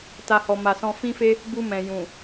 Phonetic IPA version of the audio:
t a˧ h ɔ˨ m a˨ s ɔ̃˧ f ĩ˦ f e˦ | b u˧ m ɛ̃˨ j ũ˨

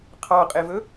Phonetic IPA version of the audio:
qʰ ɑ qʼ e v ɵ

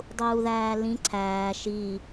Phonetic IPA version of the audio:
dˤ uː ð æː l ĩ ǀʰ æː ʃ i

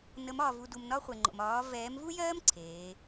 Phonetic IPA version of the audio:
n ə˨˦ m ɒː˨ v u˨ d u˨ m n ɒ˦ χʷ ɛ˨ ŋ͡ǃ o̰˨ m ɒː˨˦ v ɛː˨˦ m v u˦ j ɜː˦ m ǀʰ eː˨˦

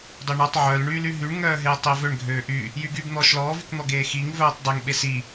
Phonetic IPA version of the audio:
dˤ o ɳ ɔ tˤ ʕ œ l ɳ yː l y ɦ y ɳ ŋ œː ɦ eː tˤ e v ø ɳ ɡʱ øː ʔ y | j y ɡ y b n̪ ɔː ʃ l ɔː v y k n̪ ɔ ɡ eː x i ŋ v œː tˤ dˤ e ŋ ɓ e s i

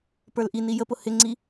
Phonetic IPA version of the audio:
p ə˞ l ʔ i n i j ə p ʊ h ɪ ŋ͡ǀ i

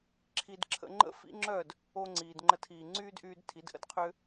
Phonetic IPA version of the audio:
ǁʰ i˧ d ǁʰ ə̰˧ ŋ͡ǃ ə̰˦˨ f ḭ˦ ŋ͡ǁ œː˦˨ d | o˦ ŋ͡ǀ iː˨ d ŋ͡ǃ ə˧ tʰ iː˨ ŋ͡ǀ yː˦ d ʔ yː˧ d tʰ i˨˦ d ʔ ə̰˦ d qʰ ʏː˦

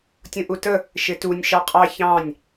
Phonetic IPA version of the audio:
tʲ ũ ʔ u t ə | ʃ ɪ t u nʲ ʃ ɑ qʼ ɑ ç ɑ̃ nʲ

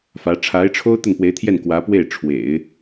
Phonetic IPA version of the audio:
f ä˧˥ ʈ͡ʂʰ a˧˥ ɪ̯ ʈ͡ʂʰ o˥ ʊ̯ t̪ ə˥˩ n p w e˧˥ ɪ̯ t̪ʰ j ɛ˥˩ n k w ä˧˥ p w e˥˩ ɪ̯ ʈ͡ʂʰ w ḛ˨˩˦ ɪ̯

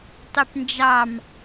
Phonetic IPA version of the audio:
tˤ y p n d͡ʒ ɑ m

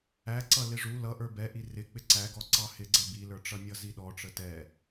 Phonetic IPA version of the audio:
æ ǀ ʌ l ɪ ʐ u l ʌ ʔ ə˞ b ɛ ʔ i r ɪ k͡p ɪ ǀ æ ɡ ɔ ǀ ɑ h ɪ ɡ͡ǀ ɛ b i l ə˞ ʈ͡ʂ ʌ nʲ ʌ z i ɗ ɔ ʈ͡ʂ ə t ɛ

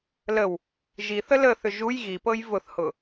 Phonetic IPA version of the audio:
l ə w | ʒ i θ ə l ə θ ʏ ʒ u j ɣ i p ɤ j v ʊ θ h ʊ

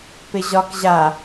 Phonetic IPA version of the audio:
p ɪ ʑ ɒ k ʑ a

